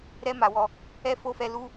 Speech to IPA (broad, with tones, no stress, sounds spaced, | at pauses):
ɾ ɛ˦ m a˧ w ɔ˧ | ɛ˦ f o˦ f ɛ˧ l u˦